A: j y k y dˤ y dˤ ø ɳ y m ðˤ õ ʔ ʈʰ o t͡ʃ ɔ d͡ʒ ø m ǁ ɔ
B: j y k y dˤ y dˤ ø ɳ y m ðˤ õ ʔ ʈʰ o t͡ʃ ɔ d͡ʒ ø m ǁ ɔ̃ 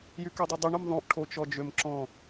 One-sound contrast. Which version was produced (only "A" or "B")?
B